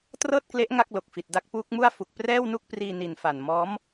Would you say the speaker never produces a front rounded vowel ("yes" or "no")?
yes